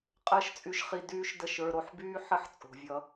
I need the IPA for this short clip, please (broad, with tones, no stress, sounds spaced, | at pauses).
qʼ əː˦ ʃ t͡sʼ y˧ ʃ χ i˧ d yː˦ ʃ d ə˦˨ ʃ ə˞˧ ɾ o˧ ħ b yː˦ ħ ə˦ ħ t͡sʼ o̤˨ vʲ ʌ˧